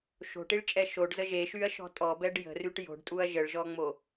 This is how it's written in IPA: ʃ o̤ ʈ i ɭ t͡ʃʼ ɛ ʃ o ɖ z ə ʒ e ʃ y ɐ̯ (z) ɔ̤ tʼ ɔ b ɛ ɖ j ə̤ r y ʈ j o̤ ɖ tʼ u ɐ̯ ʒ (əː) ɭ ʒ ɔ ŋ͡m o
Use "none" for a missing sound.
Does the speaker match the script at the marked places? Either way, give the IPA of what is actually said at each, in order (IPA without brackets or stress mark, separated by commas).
ʃ, ə